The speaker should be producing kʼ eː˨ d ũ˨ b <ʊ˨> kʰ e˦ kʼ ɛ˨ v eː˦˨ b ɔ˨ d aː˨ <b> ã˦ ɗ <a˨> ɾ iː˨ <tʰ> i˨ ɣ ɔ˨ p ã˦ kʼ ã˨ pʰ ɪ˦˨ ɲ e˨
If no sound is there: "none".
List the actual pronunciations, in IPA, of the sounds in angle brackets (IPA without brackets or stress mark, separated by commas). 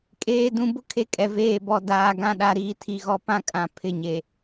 ʊ˦, ɡ, a˨, tʰ